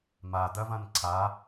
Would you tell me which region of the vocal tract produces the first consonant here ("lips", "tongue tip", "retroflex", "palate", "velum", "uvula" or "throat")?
lips